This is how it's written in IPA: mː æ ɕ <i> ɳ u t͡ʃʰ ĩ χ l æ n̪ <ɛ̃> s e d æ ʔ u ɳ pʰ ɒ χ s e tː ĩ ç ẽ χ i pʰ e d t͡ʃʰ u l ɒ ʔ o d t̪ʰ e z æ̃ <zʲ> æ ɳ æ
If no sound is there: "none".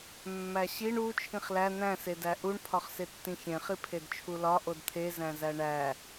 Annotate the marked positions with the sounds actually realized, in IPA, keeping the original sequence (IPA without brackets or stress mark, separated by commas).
i, æ̃, z